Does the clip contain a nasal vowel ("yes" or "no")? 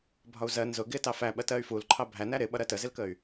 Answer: no